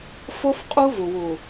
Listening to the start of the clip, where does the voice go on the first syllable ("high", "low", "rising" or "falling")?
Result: high